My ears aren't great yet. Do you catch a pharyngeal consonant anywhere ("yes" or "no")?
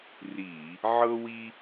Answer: yes